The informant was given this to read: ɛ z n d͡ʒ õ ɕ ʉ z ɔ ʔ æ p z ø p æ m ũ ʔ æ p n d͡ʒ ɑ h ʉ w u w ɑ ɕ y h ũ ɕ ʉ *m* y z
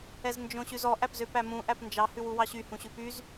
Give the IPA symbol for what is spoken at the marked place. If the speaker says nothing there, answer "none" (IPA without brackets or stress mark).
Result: p